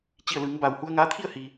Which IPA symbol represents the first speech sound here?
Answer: t͡ɕ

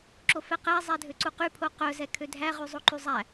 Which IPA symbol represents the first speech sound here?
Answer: ǁ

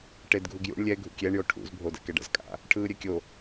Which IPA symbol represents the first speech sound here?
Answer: ʈ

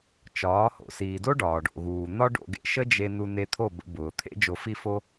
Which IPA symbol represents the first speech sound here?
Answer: t͡ʃ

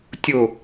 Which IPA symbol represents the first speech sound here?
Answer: tʲ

